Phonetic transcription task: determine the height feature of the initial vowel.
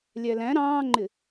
low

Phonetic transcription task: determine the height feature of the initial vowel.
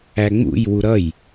low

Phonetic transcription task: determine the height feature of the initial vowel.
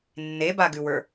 mid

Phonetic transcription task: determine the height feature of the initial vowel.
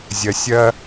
low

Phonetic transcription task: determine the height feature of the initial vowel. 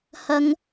low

